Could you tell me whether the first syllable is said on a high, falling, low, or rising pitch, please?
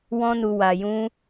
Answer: high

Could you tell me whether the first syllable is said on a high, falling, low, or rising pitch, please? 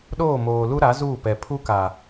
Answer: falling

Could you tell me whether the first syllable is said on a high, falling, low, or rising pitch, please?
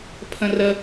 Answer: high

